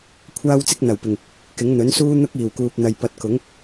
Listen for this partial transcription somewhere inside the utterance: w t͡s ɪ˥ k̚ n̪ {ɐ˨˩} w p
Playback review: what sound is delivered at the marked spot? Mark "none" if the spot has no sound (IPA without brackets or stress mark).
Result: ɐ˨˩